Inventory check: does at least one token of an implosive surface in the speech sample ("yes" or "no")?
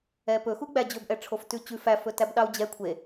yes